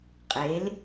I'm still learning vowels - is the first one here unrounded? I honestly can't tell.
yes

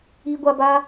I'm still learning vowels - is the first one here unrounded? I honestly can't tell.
yes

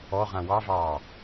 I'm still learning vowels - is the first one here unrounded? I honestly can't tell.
no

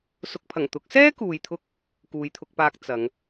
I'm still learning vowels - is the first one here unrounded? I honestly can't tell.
no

